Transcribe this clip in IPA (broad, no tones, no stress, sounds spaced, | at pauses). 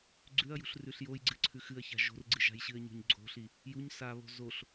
ɡ͡ǀ ʉ ɐ̯ j ṳ ɬ r ʉ ɬ j o j ɡ͡ǀ ɨ ǀʰ ʉ x ɨ ɐ̯ ç a̤ ʒ o̤ r ɡ͡ǀ ɨ ʒ a̤ j ɕ ɨ ɐ̯ ɲ o̤ ɲ ɡ͡ǀ o̤ ɬ i | j u ɲ s a β o̤ z o ɬ